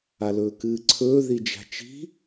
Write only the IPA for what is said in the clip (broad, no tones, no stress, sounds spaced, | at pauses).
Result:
a l ɵː k ɨː ǀʰ ɵː ð i d͡ʒ a̤ t͡ʃ i̤